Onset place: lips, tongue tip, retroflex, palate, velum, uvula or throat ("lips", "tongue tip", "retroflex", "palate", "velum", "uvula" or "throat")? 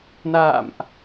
tongue tip